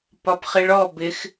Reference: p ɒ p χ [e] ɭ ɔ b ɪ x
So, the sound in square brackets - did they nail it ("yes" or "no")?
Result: no